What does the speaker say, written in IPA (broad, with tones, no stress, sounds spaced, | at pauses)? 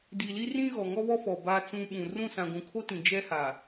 d i˨ l i˦ r ĩ˦ ɣ ɔ˨ ŋ ɔ˦ β ɔ˦ f ɔ˨ b a˨ t͡s ũ˨ ɓ ũ˨ r ũ˦˨ s ã˨ ɡʷ ũ˨ kʰ o˦ t ĩ˨ d͡ʒ ɛ˦ h aː˨